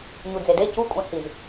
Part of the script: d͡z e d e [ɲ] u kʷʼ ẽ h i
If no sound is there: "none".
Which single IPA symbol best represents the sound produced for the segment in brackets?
c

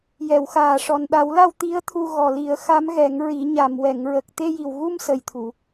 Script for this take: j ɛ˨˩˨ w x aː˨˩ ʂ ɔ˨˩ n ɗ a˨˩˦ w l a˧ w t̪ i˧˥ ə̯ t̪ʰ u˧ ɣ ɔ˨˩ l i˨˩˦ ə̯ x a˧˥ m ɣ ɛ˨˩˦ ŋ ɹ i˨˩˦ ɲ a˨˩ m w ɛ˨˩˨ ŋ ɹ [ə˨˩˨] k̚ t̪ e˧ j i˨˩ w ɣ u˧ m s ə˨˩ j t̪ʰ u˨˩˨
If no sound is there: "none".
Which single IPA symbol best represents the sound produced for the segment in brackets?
ə˨˩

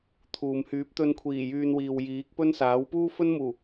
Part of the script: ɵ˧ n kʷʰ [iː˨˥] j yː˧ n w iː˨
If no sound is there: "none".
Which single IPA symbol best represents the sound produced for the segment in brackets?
iː˨˩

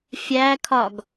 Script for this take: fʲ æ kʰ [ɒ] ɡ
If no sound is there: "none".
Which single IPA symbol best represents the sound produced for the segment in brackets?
ɒ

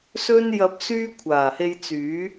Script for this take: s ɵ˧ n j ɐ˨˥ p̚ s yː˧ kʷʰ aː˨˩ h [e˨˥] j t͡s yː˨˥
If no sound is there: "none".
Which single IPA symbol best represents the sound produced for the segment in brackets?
e˧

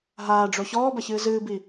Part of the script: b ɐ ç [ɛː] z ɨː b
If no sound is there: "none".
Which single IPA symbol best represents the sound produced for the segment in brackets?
ɨː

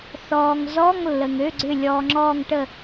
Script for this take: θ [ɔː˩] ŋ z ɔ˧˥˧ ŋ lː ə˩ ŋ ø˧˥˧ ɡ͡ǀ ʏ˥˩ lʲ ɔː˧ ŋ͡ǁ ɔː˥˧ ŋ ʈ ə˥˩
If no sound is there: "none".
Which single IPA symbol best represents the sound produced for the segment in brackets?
ɔː˩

